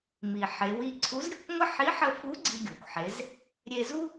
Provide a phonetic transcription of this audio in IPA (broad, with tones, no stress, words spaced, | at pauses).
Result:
mi˩ħe˩˧w i˧ǀʰu˧˥z ɾʲɘ˩kʷŋʷə˥ ħi˧˥ħə˧fu˧˥ ɡ͡ǀi˧ɡʲo˩kʷħe˩˧z | ɾʲe˧zu˥